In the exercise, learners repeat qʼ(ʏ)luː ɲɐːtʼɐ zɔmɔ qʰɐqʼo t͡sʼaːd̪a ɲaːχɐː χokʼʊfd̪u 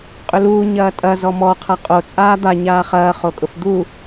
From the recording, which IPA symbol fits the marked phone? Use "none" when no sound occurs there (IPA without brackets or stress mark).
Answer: ʏ